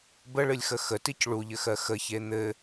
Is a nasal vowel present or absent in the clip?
absent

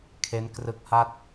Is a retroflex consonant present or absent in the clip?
absent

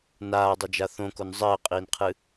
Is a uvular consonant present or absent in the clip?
present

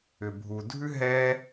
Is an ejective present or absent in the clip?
absent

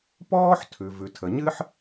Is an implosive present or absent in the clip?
absent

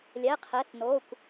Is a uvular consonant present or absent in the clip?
present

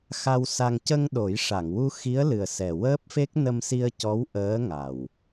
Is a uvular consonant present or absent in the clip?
absent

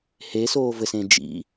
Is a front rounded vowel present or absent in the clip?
absent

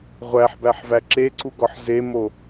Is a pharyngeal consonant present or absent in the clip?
present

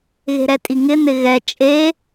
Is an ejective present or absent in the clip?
present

